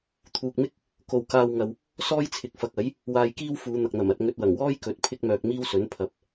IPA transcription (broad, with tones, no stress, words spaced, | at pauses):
t̪ʰuː˨k̚mɪ˥k̚ | ko˨w kaː˧wŋɐ˨w | sɔː˥jt͡sʰɪ˨k̚fɐ˨k̚ɐ˨˥j | waː˧jkiː˥w fuː˨˧n̪ɐ˨k̚n̪ɐ˨˩mɐ˨t̚ ŋɵ˧t̚ wɐ˨˩ŋwɔː˥jkɵ˨˥t̚ pʰɪ˥k̚mœː˧k̚miː˥wsɵ˨˥n pʰɐ˨p̚